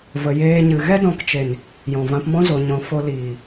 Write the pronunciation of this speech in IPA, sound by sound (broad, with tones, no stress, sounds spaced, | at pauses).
v ə˧ j eː˦ ɲ ɨ˧ ɣ ɛ˦ d ɔ̃˧ k t͡ʃ e˨ n | j ɔ̃˨ v ã˧ p m ɔ̃˦ z o˧ ɲ ɔ̃˧ f o˧ l iː˨